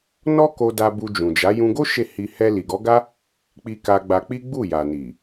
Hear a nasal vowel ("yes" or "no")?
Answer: yes